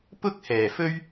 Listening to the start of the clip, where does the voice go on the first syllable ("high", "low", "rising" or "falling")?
high